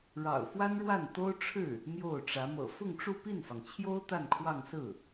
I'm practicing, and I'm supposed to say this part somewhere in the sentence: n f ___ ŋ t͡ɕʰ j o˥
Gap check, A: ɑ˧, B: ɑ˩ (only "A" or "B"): B